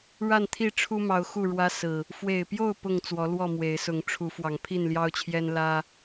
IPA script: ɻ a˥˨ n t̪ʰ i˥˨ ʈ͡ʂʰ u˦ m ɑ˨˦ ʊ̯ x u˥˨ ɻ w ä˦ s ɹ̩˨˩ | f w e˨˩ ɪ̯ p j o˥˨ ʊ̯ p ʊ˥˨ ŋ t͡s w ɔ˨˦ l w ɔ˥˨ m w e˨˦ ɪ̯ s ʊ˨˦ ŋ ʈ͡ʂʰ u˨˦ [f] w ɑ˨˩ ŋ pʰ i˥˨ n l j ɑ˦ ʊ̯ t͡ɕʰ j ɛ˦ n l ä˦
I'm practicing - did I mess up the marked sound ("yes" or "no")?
no